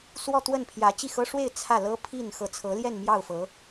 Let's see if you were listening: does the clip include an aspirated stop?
yes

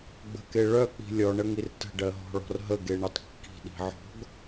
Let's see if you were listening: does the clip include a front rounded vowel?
yes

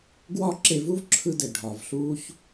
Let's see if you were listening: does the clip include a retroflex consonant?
yes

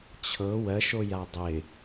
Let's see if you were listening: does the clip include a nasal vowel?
no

